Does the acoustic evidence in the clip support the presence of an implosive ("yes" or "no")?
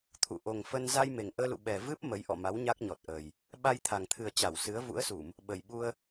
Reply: yes